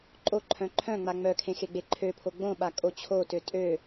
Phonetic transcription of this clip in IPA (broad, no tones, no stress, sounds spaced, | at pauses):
ǃʼ o ǃʰ œ̃ ǃʰ œ̃ ŋ͡m a ŋ͡m œ kʰ ẽ x e ɡ͡b e ǃʰ ø pʰ o ɡ͡b õ ɓ a kʼ o t͡ɕʰ o t ø tʼ ø